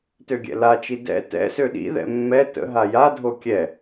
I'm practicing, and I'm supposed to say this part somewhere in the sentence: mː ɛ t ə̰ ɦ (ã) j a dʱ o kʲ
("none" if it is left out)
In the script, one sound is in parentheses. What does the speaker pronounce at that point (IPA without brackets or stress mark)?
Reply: a